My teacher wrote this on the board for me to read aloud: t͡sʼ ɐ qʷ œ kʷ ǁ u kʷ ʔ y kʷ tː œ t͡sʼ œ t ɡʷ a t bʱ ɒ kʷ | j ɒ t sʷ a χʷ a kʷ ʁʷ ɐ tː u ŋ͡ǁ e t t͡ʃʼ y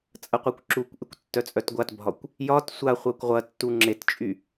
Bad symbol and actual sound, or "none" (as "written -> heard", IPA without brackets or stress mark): none